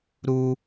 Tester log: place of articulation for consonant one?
alveolar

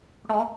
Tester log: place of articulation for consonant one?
retroflex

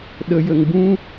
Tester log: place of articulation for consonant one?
alveolar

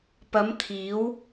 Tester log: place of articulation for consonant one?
labial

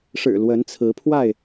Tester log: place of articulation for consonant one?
retroflex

